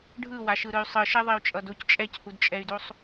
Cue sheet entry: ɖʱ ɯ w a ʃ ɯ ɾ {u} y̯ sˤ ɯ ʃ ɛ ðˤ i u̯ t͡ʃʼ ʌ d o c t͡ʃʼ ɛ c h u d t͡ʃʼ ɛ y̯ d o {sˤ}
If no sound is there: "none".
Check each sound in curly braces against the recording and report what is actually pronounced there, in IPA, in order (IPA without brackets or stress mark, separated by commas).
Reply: ɯ, sˤ